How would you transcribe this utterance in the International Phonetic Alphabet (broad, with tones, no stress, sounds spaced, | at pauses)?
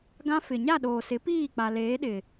ɡ ã˦ f ɪ˨ ɲ a˦˨ ɗ oː˨ s ɪ˨˦ p iː˦˨ k͡p a˨ l eː˨˦ ɗ ɪ˨